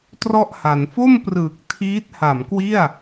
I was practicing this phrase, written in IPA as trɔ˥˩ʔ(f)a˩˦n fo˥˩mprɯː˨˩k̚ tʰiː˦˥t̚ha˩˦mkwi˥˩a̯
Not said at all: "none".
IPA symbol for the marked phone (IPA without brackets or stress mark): h